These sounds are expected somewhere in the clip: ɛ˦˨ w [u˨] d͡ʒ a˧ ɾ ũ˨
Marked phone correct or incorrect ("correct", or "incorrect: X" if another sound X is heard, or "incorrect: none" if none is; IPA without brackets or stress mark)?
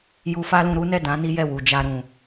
correct